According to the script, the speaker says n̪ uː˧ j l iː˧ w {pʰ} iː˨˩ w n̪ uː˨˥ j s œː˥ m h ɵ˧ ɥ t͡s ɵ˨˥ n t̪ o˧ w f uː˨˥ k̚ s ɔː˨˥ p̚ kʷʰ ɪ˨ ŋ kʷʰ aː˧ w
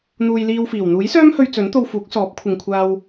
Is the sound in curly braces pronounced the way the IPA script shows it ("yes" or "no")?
no